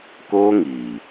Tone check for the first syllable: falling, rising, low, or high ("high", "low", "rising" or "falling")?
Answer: high